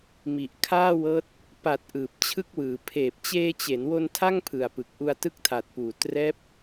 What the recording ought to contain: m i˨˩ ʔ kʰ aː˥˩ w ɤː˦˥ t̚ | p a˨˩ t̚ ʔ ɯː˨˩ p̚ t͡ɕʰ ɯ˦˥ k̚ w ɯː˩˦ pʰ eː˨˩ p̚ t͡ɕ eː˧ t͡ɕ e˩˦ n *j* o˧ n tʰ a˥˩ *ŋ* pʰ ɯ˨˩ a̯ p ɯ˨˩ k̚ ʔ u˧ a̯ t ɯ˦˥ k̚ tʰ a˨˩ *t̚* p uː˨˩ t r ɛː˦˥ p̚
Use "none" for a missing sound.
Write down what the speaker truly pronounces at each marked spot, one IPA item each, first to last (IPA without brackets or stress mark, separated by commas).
w, ŋ, t̚